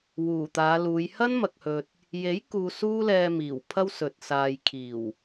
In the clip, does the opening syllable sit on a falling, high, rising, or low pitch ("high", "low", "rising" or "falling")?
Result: low